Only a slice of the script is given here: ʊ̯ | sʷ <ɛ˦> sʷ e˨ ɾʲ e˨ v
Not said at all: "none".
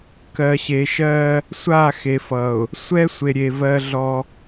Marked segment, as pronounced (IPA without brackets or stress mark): ɛ˦